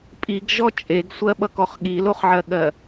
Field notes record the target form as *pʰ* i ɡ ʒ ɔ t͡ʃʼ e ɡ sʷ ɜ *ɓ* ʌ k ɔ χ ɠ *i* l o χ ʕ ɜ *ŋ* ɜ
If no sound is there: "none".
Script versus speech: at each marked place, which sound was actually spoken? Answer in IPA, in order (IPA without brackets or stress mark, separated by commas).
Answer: pʼ, ɓ, i, ɠ